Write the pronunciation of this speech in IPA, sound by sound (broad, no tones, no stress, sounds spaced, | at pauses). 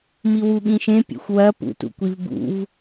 m i w u ɠ ĩ ʃ ẽ pʲ ḛ xʷ w ɐ p ṵ t ṵ kʷ i v b ṵ v